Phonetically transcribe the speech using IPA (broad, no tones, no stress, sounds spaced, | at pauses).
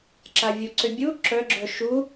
ǁ a vʲ u ǀ ʏ bʲ u ǁ œ ɡ͡ǁ œ ʃ u